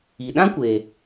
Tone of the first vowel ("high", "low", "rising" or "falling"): low